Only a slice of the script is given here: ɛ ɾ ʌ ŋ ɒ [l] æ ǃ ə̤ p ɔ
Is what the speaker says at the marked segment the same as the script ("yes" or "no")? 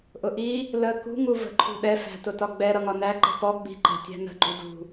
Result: no